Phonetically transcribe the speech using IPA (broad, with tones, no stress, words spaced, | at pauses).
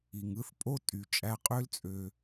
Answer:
i˨ŋɯ˦θ pʼo˦ tʼy˨ t͡ʃʼæ˧qʼø˦l t͡sʼø˧